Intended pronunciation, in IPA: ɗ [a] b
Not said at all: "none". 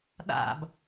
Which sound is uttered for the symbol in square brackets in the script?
a̰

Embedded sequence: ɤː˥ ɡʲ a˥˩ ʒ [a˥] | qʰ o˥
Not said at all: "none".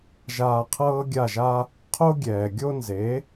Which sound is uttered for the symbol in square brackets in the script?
a˥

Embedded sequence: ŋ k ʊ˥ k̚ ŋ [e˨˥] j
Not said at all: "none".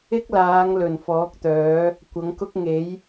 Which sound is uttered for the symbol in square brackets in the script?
e˨˥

